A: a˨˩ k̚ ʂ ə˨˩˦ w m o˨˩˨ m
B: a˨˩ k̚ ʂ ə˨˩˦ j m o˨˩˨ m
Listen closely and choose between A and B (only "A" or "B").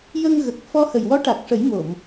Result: B